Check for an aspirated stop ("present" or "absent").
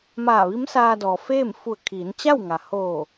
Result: present